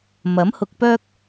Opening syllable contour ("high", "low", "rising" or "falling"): rising